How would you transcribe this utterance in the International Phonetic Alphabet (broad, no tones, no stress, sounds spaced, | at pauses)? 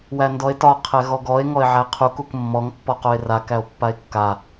w æ n d ɔ e̯ t ɒ qʰ ɛ ɣ ɔ ɡ ɔ e̯ ŋ ɔ e̯ ʕ æ qʰ u k u k mː ɔ ŋ pː ɔ q o e̯ r a k æ o̯ pː a e̯ kː a